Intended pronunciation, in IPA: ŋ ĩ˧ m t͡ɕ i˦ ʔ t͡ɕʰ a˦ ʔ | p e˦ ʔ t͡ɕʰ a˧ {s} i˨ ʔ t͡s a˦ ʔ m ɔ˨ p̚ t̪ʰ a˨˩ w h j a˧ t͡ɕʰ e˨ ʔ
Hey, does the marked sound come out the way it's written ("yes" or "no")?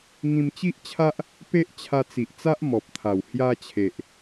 no